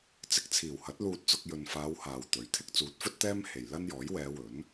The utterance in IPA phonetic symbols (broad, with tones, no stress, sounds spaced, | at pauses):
t͡s ɪ˨ k̚ t͡sʰ iː˨˩ w h ɐ˨˥ t̚ l uː˧ t̚ t͡s ʊ˧ k̚ j ɵ˨ n f aː˨˧ w h aː˨ w t̪ ɵ˨˥ ɥ t̪ʰ ɪ˥ k̚ t͡s uː˨˥ t̚ f ɵ˥ t̚ t̪ ɛː˥ m h e˨ j l ɐ˥ n j ɔː˨˥ j w ɛː˨˧ w ɵ˨˥ n